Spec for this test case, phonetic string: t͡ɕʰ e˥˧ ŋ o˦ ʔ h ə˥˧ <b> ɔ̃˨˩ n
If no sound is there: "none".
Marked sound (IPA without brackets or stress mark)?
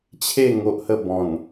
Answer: b